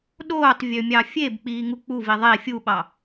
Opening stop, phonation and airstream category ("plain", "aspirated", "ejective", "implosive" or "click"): implosive